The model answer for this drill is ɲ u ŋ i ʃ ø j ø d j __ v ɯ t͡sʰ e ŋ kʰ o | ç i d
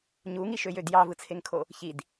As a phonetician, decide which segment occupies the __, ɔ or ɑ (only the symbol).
ɑ